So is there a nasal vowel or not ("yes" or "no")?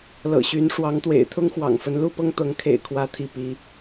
no